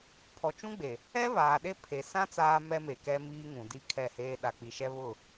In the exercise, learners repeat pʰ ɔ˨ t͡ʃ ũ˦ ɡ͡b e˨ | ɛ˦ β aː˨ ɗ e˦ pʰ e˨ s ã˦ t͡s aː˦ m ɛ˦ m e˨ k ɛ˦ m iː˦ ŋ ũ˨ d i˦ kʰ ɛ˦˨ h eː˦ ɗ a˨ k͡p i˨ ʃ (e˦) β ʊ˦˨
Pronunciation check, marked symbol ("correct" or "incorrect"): incorrect